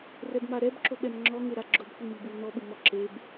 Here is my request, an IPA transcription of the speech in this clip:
r ɛ b m a ɾ ɛ b ǁ o ɓ ɛ m ŋ͡ǁ ɔ ŋ e ɾ a ɡ͡ǁ ʊ b kʷ i m i b u l n ɔ ɓ u m ɔ ǁ e b

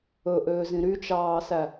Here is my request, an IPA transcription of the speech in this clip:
ɵ ʔ øː z ĩ ɾ y t͡ʃ ɑː s æ

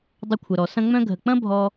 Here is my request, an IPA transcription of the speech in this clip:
dˤ ə˧ kʷʰ ə˨ ɾ ɔ˨ s ɐ̃˧ ŋ͡m œ̃˧ ɡʱ ə˨ k͡p ɐ̃˦ bʱ ɔ˦

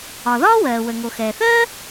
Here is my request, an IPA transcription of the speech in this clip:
ɒ˩ ð ɒː˥ w ɜː˩ w ə˩ ŋ o˩ x ɛː˩ θ ɜː˥

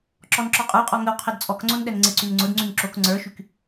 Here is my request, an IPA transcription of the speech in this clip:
ǁ ɔ n ǁ ɔ qʼ ə˞ qʼ ɔ ŋ ə w qʰ ɛ d t͡sʼ ɔ k ŋ͡ǀ o n ɗ ɛ n ŋ͡ǀ ɪ ǀ y n ŋ͡ǀ ʊ d ŋ͡ǀ y ŋ ǁ o k ŋ͡ǀ ə˞ ʃ y k

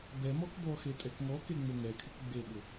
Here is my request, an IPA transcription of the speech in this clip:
b ɛ m ɔ k d̪ ɔ x e tʼ ɛ k ŋ ɔ k e ŋ͡m o ŋ ɛ kʰ ɪ k ɡ͡b e ɓ ʊ

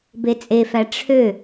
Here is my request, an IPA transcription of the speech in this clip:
b e t͡sʼ e f æ ʈ͡ʂʰ ø

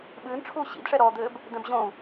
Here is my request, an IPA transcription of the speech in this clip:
ɓ ɨː n ʈ͡ʂʰ uː ɕ ḭ d ʂ ɛ ɾ ɔ d̪ ɘː b | d̪ ɛ̃ b ʑ õ u̯

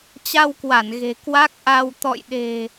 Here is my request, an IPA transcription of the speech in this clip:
t͡ɕ a˧ w k w a˧˩ n ɣ e̤˨˩ k w a˦˥ k̚ ʔ a˧ w t̪ ɔ̰˧˨ j ɗ e̤˨˩

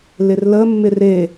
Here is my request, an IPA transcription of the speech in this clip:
l ɪ r l ə mː ɪ r e

